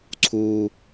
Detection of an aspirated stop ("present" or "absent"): present